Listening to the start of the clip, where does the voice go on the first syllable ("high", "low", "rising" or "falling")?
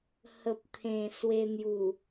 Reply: low